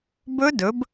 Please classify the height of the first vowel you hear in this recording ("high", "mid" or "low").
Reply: mid